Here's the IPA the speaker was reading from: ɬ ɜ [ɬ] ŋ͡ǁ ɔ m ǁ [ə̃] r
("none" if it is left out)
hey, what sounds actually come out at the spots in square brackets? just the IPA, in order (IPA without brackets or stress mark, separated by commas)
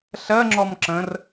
none, ə̃